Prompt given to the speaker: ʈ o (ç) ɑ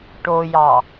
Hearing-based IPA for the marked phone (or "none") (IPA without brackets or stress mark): j